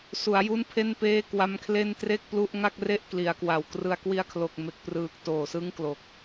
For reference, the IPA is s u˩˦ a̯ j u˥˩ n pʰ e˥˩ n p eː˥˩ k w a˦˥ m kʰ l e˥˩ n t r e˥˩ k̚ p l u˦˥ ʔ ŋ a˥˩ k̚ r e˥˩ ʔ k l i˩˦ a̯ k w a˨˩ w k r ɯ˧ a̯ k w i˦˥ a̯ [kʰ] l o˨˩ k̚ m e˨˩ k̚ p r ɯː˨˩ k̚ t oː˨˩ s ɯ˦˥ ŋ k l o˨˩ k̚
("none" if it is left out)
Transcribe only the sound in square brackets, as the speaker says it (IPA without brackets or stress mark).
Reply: kʰ